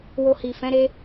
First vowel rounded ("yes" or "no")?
yes